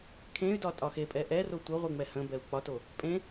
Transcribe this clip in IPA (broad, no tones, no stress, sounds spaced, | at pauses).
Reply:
kʰ ẽ y̯ d ɒ tʼ ɒ x e pʼ ɛ ʔ ɛ r o tʷ ə ʁʷ ɨ ŋ͡m ɛ h ə̃ b ɛ u̯ k͡p ɒ t o | pʼ ẽ